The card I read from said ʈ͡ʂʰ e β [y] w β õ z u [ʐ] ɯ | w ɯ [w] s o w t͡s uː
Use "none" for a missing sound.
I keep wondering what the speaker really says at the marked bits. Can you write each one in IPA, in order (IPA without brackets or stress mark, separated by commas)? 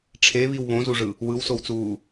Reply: i, ʐ, w